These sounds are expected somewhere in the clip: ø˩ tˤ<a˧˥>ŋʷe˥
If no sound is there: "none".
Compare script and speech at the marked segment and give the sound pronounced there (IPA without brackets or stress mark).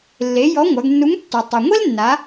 a˩